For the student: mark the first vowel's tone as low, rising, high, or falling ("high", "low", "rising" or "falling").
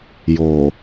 low